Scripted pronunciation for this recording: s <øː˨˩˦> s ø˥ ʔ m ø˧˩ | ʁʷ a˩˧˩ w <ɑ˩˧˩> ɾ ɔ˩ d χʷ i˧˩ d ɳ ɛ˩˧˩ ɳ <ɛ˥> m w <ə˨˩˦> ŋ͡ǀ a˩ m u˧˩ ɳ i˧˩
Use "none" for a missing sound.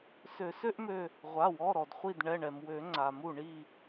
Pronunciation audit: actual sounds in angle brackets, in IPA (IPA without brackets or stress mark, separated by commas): ø˨˩˦, ɔ˩˧˩, ɛ˩, ø˨˩˦